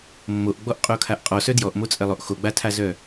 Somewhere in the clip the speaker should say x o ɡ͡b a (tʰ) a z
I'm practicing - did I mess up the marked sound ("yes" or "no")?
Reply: no